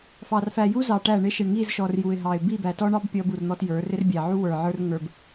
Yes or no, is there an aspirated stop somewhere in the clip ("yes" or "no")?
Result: no